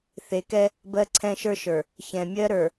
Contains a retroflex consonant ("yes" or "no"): no